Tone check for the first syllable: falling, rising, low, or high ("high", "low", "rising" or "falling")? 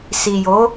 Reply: low